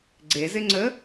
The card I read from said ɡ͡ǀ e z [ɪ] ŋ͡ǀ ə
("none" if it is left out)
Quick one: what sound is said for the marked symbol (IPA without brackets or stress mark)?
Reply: ɪ